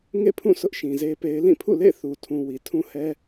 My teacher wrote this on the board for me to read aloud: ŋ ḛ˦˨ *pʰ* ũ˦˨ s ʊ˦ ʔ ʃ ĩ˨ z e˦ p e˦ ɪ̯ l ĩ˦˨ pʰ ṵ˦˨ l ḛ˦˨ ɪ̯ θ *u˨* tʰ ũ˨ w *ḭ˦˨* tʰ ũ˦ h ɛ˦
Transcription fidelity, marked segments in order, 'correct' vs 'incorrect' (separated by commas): correct, correct, incorrect